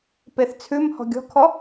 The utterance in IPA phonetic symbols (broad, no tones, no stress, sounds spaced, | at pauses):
p e θ t͡sʰ ʉ m h ɔ̤ ɡʲ ɔ̤ kʰ ɔ